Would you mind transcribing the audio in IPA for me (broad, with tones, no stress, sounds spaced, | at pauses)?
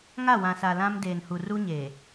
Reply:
ŋ a˦˨ w ã˨ s a˨ l ã˦ m d eː˨ n h u˨ r u˦ ɲ eː˨